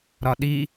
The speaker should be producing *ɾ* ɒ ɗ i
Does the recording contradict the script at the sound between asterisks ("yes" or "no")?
no